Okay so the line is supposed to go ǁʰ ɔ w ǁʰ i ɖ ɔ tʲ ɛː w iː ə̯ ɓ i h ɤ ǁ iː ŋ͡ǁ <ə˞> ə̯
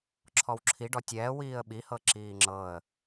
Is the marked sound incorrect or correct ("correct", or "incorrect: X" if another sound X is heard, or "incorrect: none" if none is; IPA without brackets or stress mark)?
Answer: incorrect: ɤ